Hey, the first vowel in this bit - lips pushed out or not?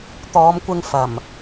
yes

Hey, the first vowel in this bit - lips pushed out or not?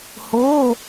yes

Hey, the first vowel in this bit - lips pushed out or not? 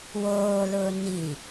yes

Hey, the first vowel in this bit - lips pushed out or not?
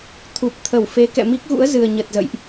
yes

